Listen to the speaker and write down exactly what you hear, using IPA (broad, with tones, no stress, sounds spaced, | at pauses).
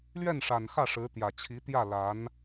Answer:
l ɥ ɛ˥˩ n ʂ a˨˩ n x ä˥˩ ʂ ɻ̩˧˥ t̪ j ä˨˩ t͡ɕʰ i˧˥ t̪ j ä˥˩ l a˧˥ n